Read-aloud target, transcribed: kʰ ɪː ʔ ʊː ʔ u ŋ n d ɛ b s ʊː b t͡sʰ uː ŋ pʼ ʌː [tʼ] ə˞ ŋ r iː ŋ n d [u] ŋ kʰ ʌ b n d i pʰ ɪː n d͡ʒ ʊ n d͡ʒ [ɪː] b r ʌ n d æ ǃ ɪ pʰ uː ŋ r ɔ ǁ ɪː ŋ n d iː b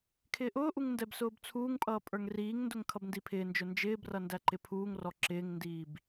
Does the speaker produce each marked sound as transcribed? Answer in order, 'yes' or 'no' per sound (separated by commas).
no, no, yes